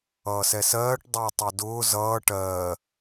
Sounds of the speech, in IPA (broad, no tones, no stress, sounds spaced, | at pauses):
ʌː s ɛ s ɜː ʈ dˤ ʊː tˤ ɜ d ʊː z ʌː ʈ ɜː